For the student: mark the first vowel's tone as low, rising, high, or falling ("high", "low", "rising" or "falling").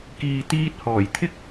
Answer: low